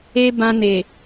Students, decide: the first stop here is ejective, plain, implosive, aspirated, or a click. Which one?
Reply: plain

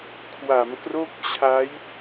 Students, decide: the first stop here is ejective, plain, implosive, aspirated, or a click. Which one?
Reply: aspirated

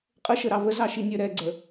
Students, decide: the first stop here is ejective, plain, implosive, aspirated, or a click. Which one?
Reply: ejective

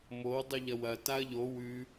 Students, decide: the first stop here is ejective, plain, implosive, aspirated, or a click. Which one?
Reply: plain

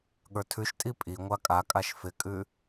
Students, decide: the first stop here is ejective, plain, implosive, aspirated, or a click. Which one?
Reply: implosive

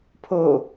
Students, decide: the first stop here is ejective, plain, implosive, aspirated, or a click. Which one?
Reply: aspirated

